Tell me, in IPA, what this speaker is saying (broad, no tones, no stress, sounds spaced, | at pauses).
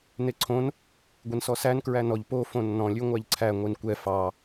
n e ǀʰ õ n | ɡʷ e n s ɔ s æ n k ɹ æ n ɔ ʎ p o f õ nː ɔ̃ lʲ ʉ ŋʷ æ ʎ ǀʰ æ ŋʷ i n kʷ ɛ f ɑ